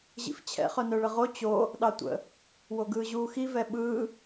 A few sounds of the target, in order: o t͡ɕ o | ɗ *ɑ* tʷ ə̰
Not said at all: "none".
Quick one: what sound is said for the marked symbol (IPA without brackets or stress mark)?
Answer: ɑ